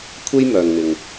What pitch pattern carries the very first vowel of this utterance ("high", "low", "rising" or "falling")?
high